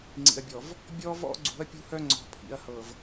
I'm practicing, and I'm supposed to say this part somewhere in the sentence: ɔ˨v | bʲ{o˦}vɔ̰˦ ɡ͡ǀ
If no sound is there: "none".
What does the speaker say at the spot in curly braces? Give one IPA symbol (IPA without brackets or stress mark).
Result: ɔ˦